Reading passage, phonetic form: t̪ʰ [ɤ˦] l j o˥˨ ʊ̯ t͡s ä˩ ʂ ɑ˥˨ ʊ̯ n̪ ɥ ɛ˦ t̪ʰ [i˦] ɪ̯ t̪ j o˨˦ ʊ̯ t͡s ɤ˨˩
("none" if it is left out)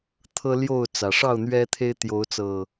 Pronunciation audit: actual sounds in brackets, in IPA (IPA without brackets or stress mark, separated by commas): ɤ˦, e˦